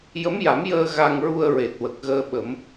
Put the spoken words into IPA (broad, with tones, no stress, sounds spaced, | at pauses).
j ə˧˥ m j a˨˩˦ m j əː˧ ɣ a˧ ŋ ɹ u˧ ə̯ ɹ e˨˩ t̚ w ə˨˩ k̚ ɣ əː˧ ɓ ə˨˩˦ m